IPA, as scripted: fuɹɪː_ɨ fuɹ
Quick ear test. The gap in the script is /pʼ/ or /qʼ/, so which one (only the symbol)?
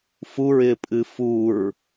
pʼ